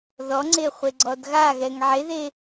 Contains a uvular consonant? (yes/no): yes